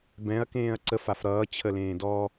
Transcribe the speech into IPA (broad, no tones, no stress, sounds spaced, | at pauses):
b ɛ̃ ɐ̯ k ẽː ɐ̯ ǀ ə f a f ɾ ʌː t͡ɕʰ ə l ẽː d ɔ